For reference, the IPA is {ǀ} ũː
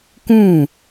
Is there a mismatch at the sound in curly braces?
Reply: yes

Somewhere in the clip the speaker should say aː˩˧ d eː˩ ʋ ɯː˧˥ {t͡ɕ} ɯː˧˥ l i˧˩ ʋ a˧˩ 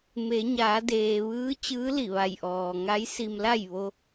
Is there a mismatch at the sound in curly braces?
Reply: no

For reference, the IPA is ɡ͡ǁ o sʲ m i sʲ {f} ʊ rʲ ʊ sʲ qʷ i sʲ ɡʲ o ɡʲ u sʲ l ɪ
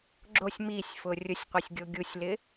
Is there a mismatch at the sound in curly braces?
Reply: no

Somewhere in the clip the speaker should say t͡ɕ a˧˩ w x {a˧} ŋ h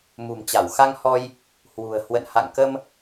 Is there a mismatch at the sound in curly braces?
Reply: no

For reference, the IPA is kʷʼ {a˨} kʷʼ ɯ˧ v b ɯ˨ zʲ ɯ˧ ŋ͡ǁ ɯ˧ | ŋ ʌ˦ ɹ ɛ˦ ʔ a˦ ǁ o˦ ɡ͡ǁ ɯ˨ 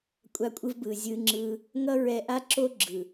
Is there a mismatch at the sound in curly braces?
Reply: yes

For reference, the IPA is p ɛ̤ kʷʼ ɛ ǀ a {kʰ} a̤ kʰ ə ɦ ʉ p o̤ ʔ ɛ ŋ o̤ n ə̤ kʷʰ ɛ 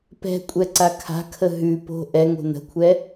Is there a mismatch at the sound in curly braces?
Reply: no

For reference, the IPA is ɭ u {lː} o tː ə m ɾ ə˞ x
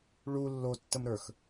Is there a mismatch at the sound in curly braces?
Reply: no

